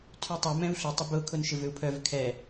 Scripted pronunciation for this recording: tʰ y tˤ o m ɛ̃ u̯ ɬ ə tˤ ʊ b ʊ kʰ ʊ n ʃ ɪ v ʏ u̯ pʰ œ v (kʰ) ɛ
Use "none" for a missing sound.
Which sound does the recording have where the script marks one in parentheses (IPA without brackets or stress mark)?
kʰ